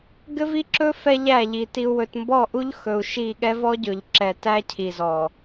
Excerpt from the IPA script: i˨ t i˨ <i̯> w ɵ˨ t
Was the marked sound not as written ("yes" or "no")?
yes